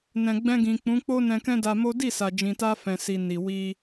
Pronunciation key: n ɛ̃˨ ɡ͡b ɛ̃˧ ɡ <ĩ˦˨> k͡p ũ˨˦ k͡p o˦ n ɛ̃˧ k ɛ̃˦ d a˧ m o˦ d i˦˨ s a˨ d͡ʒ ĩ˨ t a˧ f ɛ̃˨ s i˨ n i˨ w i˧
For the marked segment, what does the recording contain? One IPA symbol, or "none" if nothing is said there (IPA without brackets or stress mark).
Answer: ĩ˨